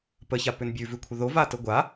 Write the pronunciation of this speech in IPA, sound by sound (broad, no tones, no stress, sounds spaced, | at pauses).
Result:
p ə ç a p ʏ n bʲ ʉ v ʉ kʷʰ ə ð o v a t ə ɡʷ a